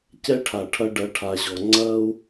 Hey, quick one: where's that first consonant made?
palate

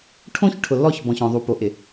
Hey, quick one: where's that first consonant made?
retroflex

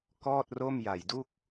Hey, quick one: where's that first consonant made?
velum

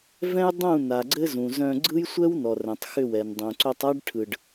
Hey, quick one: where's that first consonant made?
lips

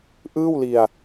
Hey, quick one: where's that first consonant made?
throat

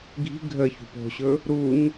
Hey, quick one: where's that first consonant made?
velum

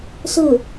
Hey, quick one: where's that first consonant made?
tongue tip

